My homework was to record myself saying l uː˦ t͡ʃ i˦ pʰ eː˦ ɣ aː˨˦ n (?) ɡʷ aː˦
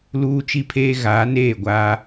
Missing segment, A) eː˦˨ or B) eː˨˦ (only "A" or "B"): A